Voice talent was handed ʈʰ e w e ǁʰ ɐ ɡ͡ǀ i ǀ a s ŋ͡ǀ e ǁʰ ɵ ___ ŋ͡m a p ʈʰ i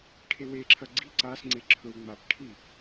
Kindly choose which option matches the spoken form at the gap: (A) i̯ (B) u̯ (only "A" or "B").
B